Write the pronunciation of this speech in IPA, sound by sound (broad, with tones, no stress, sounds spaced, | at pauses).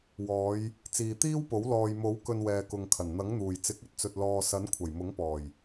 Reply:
w ɔː˨˧ j | t͡s iː˨ t̪ iː˥ w p o˨˥ w l ɔː˨ j m o˨˥ w k ɵ˧ n w ɛː˨ k ʊ˨ ŋ kʰ ɐ˨˩ n n̪ ɐ˨˥ ŋ n̪ uː˨˩ j t͡s ɪ˨˥ k̚ ɵ˨ t̚ t͡s ɵ˨ t̚ l ɔː˨ s ɐ˨˥ n kʷʰ ɐ˨˩ j m ʊ˨˥ ŋ p ɔː˨˩ j